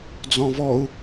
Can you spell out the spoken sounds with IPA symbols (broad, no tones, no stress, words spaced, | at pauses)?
d͡zɔ̃vɔu̯